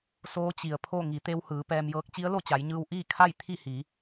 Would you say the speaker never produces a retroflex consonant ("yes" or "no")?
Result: yes